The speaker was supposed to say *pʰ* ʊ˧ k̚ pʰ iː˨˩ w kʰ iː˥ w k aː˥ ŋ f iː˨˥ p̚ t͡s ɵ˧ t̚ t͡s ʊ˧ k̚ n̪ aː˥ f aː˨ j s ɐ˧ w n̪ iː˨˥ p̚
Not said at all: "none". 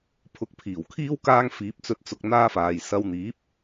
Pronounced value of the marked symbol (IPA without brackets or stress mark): pʰ